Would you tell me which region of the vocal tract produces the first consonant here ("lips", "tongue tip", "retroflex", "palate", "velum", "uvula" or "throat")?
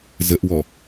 tongue tip